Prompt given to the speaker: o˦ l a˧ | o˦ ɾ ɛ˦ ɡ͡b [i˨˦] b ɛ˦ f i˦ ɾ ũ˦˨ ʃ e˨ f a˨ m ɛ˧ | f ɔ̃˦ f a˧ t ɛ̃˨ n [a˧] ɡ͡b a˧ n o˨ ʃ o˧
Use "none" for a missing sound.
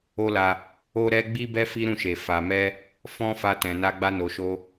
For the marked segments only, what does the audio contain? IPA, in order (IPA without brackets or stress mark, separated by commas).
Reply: i˦, a˧